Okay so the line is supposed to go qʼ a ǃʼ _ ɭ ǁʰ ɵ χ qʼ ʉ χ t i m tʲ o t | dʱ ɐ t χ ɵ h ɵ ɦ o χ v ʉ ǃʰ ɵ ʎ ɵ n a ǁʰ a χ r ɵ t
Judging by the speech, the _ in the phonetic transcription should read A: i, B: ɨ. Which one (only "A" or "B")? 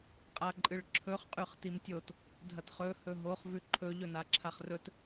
B